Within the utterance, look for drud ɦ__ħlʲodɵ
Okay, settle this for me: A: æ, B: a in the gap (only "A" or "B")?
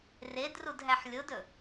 A